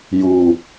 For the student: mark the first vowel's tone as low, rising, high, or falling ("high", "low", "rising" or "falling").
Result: low